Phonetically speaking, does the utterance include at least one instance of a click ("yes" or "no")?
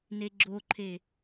yes